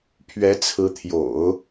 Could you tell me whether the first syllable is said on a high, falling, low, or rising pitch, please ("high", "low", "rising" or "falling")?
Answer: rising